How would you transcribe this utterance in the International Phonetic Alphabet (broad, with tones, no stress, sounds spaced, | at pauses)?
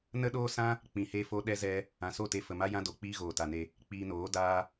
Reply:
n ə˦ ɗ oː˦ s ã˦ | k͡p ĩ˨ h e˧ f o˧ ɗ ɛ˧ z ɛ˧ | ã˨ s o˦˨ t e˧ f ə˨ m a˦ j ã˦ d o˨ k͡p iː˦ ɣ oː˨ t a˨ n e˧ | k͡p iː˧ n oː˨˦ d aː˦